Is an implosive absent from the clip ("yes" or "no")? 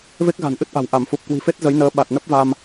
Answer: no